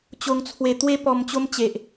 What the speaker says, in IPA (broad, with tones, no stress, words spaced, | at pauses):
t͡ɕo˧ŋt͡sʰwe˧t̪we˦ pɔ˧mt͡ɕo˦mt͡ɕe˨ʔ